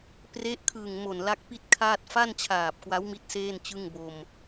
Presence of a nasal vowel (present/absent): absent